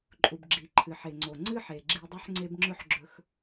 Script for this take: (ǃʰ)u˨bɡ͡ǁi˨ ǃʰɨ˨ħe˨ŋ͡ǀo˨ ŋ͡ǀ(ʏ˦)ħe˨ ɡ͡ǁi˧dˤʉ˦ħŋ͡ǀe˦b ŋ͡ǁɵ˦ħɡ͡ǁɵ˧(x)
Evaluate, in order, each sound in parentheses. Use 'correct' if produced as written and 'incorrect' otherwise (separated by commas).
incorrect, incorrect, correct